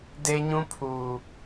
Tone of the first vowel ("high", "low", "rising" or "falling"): high